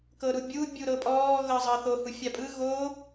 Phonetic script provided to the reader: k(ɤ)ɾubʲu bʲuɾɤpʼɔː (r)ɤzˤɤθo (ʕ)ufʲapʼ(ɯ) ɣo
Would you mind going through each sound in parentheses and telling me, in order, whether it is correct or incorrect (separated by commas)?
correct, incorrect, incorrect, correct